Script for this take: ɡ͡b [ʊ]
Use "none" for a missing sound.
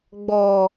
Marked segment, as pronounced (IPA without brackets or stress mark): ɔ